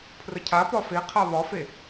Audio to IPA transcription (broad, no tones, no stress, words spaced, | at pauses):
pʰrəcʰapɒ feqʰa βɒfe